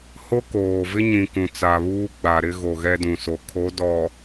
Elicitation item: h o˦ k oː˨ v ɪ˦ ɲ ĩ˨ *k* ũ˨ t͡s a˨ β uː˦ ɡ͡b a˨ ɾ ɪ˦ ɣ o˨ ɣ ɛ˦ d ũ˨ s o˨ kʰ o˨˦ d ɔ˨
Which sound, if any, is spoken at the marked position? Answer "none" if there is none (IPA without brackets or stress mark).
k